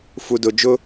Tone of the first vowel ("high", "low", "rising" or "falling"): low